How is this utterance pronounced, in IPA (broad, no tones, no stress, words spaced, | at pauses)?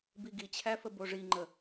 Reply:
biɡit͡ɕʰæfə boʐiŋ͡ǃə